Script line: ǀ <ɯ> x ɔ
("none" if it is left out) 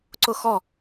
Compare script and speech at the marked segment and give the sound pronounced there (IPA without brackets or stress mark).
ʊ